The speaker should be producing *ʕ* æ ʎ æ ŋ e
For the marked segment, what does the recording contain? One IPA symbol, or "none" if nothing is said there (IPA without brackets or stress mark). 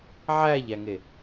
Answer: ʕ